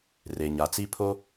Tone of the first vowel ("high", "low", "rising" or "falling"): low